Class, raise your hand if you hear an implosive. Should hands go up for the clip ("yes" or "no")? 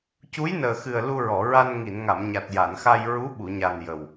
yes